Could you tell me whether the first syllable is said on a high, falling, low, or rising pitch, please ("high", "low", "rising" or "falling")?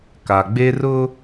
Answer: low